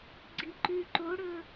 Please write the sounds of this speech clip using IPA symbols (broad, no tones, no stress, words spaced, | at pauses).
ɡ͡ǀiǃʉ ǃoɽɵ